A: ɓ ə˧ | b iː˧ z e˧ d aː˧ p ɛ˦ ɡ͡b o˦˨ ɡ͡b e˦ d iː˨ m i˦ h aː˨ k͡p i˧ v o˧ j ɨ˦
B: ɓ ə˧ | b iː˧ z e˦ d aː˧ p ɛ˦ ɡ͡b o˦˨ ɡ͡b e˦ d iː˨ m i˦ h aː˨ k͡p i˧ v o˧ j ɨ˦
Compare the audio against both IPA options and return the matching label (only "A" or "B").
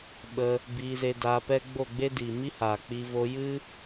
A